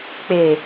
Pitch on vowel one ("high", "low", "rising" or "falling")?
low